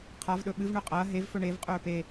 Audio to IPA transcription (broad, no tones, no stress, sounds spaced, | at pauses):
qʰ a v ɗ ɵ ɓ ɨ v ɳ ɵ qʼ ɐː ɦ e v f ɵ ɳ e v qʼ ɵː p e